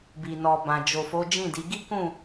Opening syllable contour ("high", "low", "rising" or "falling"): low